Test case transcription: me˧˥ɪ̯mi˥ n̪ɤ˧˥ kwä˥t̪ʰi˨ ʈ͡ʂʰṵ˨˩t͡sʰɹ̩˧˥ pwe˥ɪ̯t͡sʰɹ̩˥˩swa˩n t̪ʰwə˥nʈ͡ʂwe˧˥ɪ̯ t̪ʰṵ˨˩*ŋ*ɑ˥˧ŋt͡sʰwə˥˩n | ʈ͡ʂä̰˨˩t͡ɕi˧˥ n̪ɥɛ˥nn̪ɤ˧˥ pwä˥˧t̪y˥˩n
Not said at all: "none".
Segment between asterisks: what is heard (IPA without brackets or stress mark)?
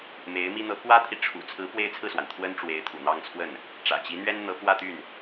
n̪